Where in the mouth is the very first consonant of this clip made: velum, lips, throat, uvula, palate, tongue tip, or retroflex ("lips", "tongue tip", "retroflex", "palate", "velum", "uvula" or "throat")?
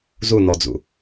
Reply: tongue tip